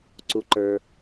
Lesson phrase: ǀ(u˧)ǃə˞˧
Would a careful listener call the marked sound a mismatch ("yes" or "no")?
no